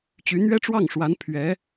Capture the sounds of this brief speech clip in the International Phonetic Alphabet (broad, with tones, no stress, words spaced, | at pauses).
t͡ɕy˧˥n̪ɥɛ˥ʈ͡ʂwɑ˥˩ŋʂwa˧˥n pʰɥɛ˧˥